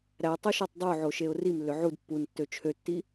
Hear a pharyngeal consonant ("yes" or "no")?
yes